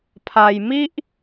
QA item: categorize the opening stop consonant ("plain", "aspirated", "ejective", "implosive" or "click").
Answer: aspirated